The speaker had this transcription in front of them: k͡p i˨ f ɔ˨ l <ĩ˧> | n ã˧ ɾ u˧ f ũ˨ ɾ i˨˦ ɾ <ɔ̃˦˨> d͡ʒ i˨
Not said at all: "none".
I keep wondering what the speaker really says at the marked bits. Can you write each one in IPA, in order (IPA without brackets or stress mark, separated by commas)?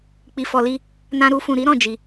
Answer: i˧, ɔ̃˦˨